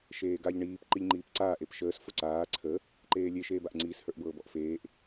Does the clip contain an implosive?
no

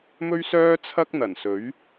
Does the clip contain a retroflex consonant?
no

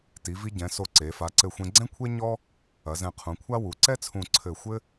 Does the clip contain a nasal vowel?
yes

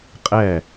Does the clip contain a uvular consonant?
yes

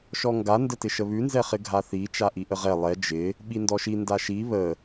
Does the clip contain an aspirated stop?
no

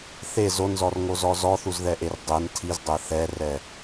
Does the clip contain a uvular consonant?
no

